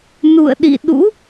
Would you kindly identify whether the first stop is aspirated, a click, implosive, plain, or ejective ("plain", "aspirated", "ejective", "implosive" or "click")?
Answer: implosive